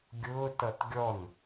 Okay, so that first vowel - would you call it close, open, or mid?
close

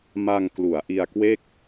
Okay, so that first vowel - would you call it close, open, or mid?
open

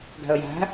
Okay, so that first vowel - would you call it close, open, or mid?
open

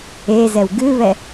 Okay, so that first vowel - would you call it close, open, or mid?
mid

